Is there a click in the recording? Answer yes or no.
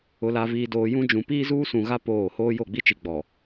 no